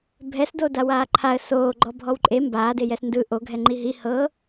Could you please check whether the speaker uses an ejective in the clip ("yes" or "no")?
yes